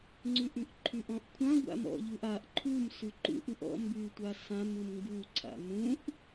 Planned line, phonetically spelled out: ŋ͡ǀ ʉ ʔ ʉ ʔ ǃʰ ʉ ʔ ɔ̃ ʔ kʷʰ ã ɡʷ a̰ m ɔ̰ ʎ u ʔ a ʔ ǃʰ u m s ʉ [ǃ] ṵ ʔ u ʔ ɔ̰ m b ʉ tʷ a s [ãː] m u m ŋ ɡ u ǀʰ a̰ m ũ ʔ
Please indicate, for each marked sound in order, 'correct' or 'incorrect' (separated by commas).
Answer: correct, incorrect